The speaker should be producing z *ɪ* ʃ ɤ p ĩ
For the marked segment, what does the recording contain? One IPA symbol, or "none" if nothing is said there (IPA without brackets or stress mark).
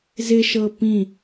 ɪ